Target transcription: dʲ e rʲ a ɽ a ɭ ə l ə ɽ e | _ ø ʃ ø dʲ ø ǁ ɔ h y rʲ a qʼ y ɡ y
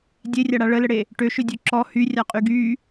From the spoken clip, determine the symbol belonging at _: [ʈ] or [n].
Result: ʈ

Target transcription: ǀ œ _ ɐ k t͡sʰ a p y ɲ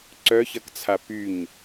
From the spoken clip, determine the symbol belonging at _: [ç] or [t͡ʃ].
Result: ç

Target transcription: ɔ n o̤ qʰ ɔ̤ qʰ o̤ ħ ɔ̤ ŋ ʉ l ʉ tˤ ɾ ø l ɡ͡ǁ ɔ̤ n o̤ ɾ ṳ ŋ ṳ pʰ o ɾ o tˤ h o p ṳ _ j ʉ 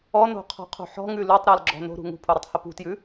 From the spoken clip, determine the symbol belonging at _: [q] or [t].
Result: t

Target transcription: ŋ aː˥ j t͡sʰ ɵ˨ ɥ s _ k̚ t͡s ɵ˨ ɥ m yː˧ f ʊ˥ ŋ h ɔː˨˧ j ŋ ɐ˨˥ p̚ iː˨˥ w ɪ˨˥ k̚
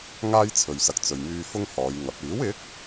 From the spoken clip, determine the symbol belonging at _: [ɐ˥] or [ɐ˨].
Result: ɐ˨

